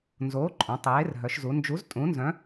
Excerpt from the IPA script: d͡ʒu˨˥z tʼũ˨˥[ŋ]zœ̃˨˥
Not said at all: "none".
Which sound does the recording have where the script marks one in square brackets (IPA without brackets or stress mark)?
n